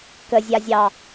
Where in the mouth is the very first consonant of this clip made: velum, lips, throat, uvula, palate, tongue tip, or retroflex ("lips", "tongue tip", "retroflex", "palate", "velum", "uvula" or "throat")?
velum